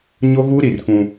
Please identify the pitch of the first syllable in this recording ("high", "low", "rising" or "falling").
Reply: high